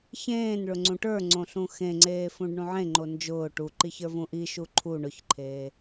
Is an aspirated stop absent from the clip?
no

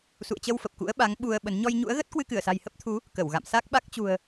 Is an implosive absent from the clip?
no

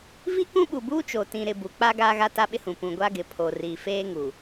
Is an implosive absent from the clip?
no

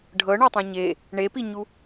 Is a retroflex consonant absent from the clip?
no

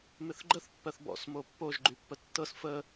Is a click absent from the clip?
no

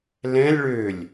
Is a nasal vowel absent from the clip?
no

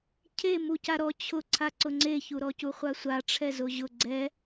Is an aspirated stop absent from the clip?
no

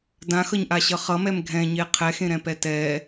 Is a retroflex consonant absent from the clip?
yes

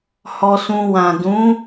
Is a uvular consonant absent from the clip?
yes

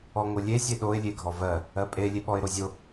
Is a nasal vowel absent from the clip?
yes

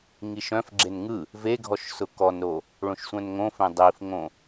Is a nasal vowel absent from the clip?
no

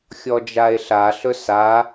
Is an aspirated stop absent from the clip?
yes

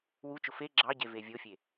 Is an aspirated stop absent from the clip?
yes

